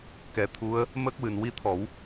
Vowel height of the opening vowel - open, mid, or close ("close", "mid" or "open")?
mid